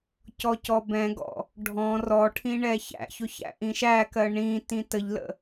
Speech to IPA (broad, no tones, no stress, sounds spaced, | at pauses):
c ɔ c ɔ b ɛ̃ ɡ ɔ̰ | ɖʱ ɔ̃ r ɔ ʈʰ ĩ ɳ ɛ ç æ̰ ç ʊ ç æ̰ ʔ ĩ ʃ æ k ɜ ɳ ĩ t ĩ t ə ʎ l ə̰